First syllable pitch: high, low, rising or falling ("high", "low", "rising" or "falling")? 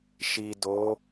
low